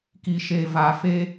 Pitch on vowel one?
low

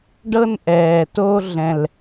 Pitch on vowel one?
high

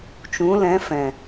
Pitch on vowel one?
rising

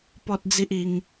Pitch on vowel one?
high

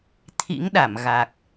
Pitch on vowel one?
rising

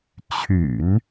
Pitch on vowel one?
low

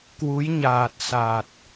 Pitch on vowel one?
rising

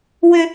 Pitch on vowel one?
high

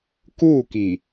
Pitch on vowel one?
falling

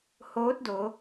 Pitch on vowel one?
rising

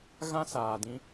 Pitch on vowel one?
high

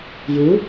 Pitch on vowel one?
rising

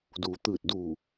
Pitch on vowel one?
low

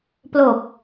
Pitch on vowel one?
low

